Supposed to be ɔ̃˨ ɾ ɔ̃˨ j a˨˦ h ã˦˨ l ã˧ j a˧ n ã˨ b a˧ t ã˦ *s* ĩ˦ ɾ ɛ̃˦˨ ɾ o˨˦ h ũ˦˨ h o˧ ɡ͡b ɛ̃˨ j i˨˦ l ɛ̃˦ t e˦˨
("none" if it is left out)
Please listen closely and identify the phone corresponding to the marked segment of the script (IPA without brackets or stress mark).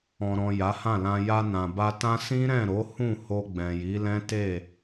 s